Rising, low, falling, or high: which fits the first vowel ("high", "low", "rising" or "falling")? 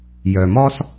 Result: low